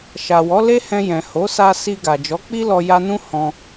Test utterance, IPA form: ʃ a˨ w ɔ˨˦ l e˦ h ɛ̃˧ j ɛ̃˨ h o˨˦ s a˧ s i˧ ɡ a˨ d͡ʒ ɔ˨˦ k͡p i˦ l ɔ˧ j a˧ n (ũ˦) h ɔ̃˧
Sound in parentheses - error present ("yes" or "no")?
no